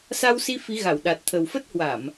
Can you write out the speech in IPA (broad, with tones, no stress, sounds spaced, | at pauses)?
s a˧ w s i˧ f i˨˦ ɣ a˧˩ w ɗ a˨˩ t̚ t̪ʰ ə˨˩ w f ə˦˥ t̚ h w a˧˩˨ m